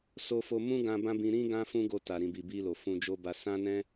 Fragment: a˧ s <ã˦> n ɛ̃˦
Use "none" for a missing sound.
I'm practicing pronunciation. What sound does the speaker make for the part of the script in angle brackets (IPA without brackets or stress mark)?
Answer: ã˦